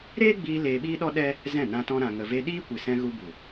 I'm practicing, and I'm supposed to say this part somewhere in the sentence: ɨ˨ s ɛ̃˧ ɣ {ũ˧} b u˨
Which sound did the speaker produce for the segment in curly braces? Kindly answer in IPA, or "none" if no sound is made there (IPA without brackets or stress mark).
u˧